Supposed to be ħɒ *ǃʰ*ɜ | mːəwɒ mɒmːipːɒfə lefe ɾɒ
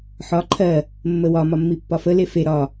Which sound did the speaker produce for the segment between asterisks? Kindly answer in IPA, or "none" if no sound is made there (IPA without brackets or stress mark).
ǃʰ